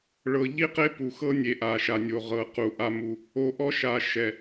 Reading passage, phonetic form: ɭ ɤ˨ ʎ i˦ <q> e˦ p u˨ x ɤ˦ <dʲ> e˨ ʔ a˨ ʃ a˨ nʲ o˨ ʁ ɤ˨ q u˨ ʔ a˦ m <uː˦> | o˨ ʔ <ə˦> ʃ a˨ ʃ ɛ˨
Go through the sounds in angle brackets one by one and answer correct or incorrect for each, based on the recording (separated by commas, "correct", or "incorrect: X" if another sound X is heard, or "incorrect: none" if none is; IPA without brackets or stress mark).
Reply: correct, incorrect: nʲ, incorrect: u˦, incorrect: ɔ˦